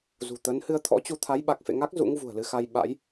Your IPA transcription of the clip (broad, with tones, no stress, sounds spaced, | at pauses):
z ṳ˨˩ t̪ ə˨˦ n h ɨ˨˦ ə̯ t̪ʰ ɔ̰˧˥ t͡ɕ u˧ t̪ʰ a˨˦ j ɓ a˨˩ k̚ f ḛ˧˨ ŋ a˦˥ k̚ z ṵ˧˥ ŋ v ṳ˨˩ ə̯ l ɨ˧ x a˧ j ɓ a̰˧˥ j